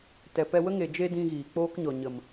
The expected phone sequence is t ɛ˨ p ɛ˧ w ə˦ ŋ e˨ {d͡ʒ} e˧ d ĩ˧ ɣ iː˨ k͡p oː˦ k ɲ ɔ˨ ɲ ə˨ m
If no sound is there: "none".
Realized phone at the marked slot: d͡ʒ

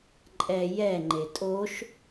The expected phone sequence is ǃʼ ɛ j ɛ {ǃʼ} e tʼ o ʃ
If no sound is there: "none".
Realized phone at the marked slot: ŋ͡ǃ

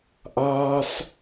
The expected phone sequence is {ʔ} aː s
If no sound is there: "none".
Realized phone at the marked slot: ʔ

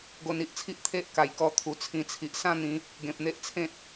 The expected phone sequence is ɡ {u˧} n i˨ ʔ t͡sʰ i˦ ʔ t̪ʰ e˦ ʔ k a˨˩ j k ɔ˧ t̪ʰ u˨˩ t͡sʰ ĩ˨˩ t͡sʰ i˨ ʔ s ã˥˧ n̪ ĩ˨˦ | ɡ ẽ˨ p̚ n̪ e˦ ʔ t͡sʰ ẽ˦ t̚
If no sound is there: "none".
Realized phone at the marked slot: o˧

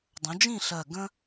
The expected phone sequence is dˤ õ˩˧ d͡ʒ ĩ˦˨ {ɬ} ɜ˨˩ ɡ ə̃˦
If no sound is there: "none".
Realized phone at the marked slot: ɬ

